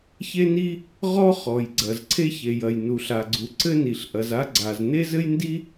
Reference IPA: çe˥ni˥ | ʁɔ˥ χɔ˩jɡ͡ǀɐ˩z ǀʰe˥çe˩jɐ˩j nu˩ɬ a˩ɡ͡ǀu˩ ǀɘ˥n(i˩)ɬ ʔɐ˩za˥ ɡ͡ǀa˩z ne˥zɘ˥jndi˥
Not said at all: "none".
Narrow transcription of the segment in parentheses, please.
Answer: i˩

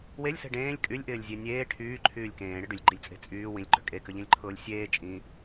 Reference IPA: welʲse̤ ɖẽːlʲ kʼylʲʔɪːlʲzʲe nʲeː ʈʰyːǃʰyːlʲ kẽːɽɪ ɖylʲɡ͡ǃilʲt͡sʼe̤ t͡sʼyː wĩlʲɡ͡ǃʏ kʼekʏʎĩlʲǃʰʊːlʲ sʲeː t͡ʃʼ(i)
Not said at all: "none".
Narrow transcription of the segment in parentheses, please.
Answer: ĩ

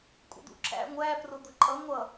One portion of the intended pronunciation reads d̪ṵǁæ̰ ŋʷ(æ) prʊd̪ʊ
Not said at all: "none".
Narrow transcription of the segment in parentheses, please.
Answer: æ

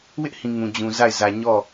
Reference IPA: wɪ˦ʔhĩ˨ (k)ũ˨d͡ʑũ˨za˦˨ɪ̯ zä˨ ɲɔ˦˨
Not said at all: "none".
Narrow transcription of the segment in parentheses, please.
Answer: ŋ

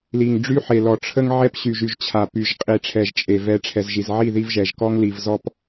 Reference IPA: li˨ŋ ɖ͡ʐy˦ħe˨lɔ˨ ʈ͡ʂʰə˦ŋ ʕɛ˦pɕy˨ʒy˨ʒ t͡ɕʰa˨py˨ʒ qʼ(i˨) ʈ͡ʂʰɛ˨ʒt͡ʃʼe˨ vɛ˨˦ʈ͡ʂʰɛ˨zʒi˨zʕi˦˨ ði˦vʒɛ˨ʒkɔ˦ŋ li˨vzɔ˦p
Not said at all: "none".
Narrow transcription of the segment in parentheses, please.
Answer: i˨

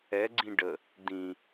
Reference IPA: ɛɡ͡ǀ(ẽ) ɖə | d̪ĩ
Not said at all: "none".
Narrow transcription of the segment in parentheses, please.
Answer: ĩ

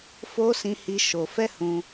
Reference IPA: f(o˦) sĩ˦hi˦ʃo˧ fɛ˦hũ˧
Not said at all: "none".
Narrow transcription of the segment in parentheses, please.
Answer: o˦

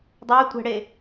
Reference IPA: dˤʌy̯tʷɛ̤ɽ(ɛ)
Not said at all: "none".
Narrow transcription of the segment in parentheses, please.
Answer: e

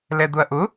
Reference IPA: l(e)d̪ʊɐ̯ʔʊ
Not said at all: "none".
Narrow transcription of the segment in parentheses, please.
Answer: ɛ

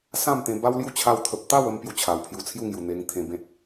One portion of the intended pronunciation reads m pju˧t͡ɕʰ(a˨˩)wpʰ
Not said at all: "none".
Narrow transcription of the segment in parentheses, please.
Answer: a˨˩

